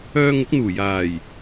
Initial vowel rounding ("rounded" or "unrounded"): rounded